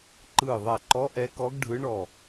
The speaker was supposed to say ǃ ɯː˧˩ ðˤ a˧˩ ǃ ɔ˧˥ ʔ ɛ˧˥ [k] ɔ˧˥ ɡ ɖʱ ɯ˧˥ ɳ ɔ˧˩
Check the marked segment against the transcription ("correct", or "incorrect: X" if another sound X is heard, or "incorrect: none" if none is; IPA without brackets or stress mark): correct